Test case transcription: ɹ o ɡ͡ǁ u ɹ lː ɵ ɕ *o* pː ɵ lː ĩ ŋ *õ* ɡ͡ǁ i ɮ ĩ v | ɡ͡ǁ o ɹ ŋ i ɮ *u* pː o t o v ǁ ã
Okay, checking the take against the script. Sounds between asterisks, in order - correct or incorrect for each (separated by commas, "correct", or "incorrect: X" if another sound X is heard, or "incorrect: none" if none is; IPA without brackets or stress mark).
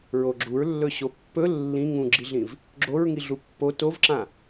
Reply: correct, incorrect: ũ, correct